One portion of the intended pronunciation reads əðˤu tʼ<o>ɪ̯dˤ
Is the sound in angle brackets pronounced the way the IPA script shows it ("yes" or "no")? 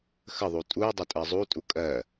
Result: no